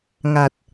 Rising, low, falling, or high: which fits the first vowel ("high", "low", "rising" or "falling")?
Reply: low